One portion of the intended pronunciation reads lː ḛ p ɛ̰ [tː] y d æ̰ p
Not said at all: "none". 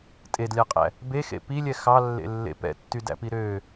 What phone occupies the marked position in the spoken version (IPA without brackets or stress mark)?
tː